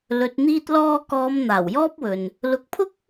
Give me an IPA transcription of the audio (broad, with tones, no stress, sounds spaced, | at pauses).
l ɵ˨ t̚ n̪ iː˧ t̚ l ɔː˧ k ɔː˨˧ m n̪ aː˨˩ w j ɔː˥ p̚ w ɵ˨ n | l ʊ˨˥ k̚ pʰ ʊ˥ k̚